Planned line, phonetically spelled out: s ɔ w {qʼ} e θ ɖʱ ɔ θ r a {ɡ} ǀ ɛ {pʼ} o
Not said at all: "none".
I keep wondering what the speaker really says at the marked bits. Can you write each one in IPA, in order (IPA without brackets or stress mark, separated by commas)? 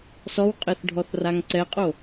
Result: qʼ, ŋ, qʼ